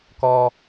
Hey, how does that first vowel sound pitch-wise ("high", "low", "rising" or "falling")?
high